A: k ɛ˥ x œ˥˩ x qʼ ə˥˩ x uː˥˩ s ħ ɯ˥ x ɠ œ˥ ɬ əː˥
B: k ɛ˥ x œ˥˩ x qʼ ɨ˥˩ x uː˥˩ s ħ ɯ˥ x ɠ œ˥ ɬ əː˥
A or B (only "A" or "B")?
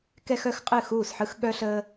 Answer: B